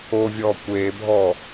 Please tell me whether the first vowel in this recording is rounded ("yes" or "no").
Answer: yes